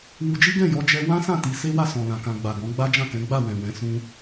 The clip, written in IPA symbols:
w u˧ d͡ʒ i˦ ɡ ɛ̃˦˨ j ɔ˧ d͡ʒ ɛ˧ w ã˦ s ã˦˨ t i˧ s e˦ w a˦˨ s ɔ̃˨ l ã˨ k ã˨ ɡ͡b a˨ ɡ ɔ̃˨˦ ɡ͡b a˦ d͡ʒ ã˦˨ k ɛ̃˨˦ ɡ͡b a˦˨ w ɛ̃˨ w ɛ̃˨˦ s ũ˧

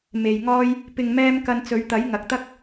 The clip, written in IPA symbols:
m e˨ j ŋ ɔː˧ j | p ɪ˨ ŋ m ɛː˧ m k ɐ˧ n t͡s ɵ˨˧ ɥ t̪ ɐ˨˥ j ŋ ɐ˨˥ k̚ t̪ ɐ˥ k̚

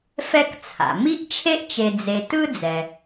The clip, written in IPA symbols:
f ɛ˦ k t͡sʰ a̰˩ m i˥ ʔ t͡ʃʰ e˥ ʔ t͡ʃ e˨ d͡z e˨ t ɯ˥ d͡z ɛ˩

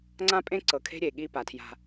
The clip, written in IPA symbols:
ŋ͡ǀ ã˦ pʼ ẽ˦ ǀ ɤ˨ kʰ e̤˦ ɾʲ eː˨ ɠ iː˦ p a˨ tʰ j a̤˦

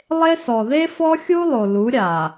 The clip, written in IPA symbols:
lˠ e˦ s ɔ˨ ð e˦ f ɔ˦ xʲ u˦ lˠ o˨ l u˨˦ ɾʲ a˨

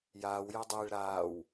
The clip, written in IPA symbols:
j aː w j e dˤ iː ɭ ɾ aː w

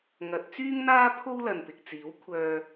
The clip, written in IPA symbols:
ŋ ɐ˨˥ t̚ t͡s yː˥ ŋ n̪ aː˥ pʰ o˥ w l ɐ˨ n p ɪ˨ k̚ t͡s iː˨˥ w kʷʰ œː˧

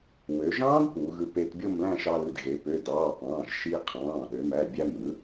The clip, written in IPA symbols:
w ø˩˧ ʒ ɑ̃ː˦˥ d p u˩˧ ɣ ɯ˧ p e˧ t bʲ o˥˧ m l æ̃˥˧ ʃ ɑ˧ l ɯ˩˧˩ d ɣ e˩˧ p ø˩˧˩ d ɑː˩˧˩ p ɑ̃ː˩˧˩ ʒ ʃ iː˧ qʰ ɑ̃ː˩˧˩ ɗ ø˩˧ m æ˩˧˩ bʲ æ˧ m ɯ˩˥

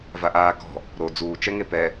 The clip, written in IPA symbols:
v a ʔ aː k ɔ̤ | ɾ o d͡z uː t͡ʃ ɛ ŋ e p ɛ

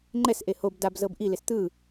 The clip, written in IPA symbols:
ŋ͡ǃ ɛ s ʔ e h o b d a b z ɤ b ʔ i l e s t̪ ɯ

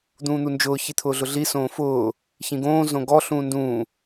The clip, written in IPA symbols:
d̪ ũː n̪ u n d͡ʒ ʊː ç i t̪ʰ ʊː ɮ ʊ ɮ i s õː f ʊː | ç ĩ ɡ õː z õ ɡ ɔ ɬ ũː n d ũː

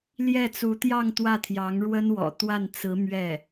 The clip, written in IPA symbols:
l j ɛ˥˩ t͡s u˧˥ t̪ j ɑ˥˧ ŋ t̪ w ä˥˩ t̪ʰ j ɑ˧˥ ŋ ɻ w ə˥ n w ɔ̰˨˩ t̪ w a˥˩ n t͡s ɹ̩˧˥ m ɥ ɛ˥˩

